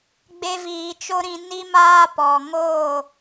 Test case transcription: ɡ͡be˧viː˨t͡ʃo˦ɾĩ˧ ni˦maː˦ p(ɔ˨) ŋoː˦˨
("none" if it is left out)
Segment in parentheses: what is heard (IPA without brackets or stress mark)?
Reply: ɔ˨